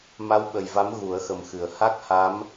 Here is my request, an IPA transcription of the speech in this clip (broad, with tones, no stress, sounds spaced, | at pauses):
m a˧˥ w ɓ ə˨˩ j v a˧˥ m ɣ u˨˩˦ ə̯ x ə˨˩ m x ɨ˨˩˨ ə̯ h a˦˥ k̚ h a˧˥ m